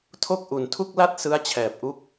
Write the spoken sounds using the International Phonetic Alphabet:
tʰ o˥˩ k̚ ʔ u˨˩ n tʰ u˥˩ k̚ l a˥˩ t̚ s ɯ˦˥ a̯ t͡ɕʰ ɛː˨˩ p̚ ʔ u˦˥ k̚

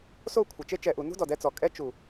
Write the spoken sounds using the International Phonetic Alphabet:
s o˦˨ kʷʰ ɪ˨ t͡ʃ e˧ t͡ʃ ɛ˨ ʔ u˨ n ṳ˦ d ɔ˨ d ɛ˧ t͡s ɔ˨ kʼ ɛ˦ t͡ʃ u˨

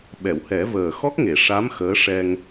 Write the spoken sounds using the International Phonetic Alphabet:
ɓ ɛ˨˩˨ w h ɛ˨˩˦ v əː˨˩ x ɔ˦˥ k̚ ŋ e˨˩˨ ʂ a˧˥ m x əː˧˥ ʂ ɛ˧ ŋ

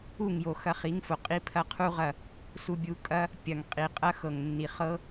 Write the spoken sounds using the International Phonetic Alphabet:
u˦˨ ŋ j o˨ x ɐ˧ χ i˨˦ ŋ f o˨ qʼ i˦ pʰ ɐ˦ qʰ u˦ ʁ ɐ˦˨ | s u˧ bʲ u˧ kʼ ɐ˦ | pʲ ɐ˨ ŋ qʼ i˨ qʼ ɐ˦ x ɤ˨ ŋ nː i˨ χ ɤ˦

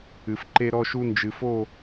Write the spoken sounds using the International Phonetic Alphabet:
ɨ˨ f ǃ e˦ ɾ ɔ˦ ʃ u˦ n d͡ʒ ɨ˨ f o˦˨

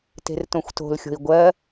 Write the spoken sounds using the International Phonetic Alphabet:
t e̤ r t õ xʷ t o̤ l xʲ o̤ i̯ ɡʷ ɜ

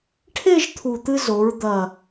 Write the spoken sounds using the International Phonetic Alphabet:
ʈʰ e˥˧ ʒ t̪ʰ u˨˩ t̪ ɨ˧ z o˩˧ ɹ d̪ ɐ˨˩

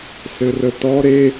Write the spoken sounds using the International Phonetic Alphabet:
s ɘ r ə t ɔ ɾ e

